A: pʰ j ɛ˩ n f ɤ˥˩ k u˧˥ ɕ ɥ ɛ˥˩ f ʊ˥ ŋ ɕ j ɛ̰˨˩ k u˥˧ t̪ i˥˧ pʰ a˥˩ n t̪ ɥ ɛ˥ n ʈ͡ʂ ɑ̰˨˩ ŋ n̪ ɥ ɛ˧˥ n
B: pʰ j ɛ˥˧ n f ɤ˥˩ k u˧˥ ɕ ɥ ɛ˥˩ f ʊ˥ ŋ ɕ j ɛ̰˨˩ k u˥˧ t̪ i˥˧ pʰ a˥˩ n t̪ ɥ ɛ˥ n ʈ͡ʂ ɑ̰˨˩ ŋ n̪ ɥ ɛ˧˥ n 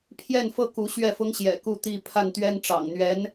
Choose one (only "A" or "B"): B